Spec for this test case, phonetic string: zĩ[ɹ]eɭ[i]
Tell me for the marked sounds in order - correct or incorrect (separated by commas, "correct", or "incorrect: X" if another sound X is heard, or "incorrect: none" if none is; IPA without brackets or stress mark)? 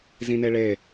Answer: incorrect: n, incorrect: e